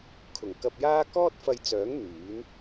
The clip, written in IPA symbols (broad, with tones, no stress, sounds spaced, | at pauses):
kʰ ʊ˨˩ ŋ k ɐ˧ p̚ j aː˥ k ɔː˥ t̚ f ɐ˧ j t͡s œː˨˥ ŋ n̪ yː˨˥ n